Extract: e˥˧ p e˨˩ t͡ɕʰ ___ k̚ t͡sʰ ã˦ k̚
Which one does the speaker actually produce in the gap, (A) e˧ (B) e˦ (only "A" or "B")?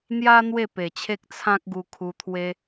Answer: B